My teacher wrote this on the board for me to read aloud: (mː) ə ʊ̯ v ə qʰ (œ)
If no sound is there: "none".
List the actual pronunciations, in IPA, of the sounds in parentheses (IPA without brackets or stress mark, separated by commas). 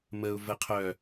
m, œ